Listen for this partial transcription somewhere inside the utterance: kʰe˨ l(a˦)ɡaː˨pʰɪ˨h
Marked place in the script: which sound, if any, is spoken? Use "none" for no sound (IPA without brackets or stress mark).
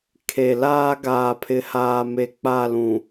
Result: aː˦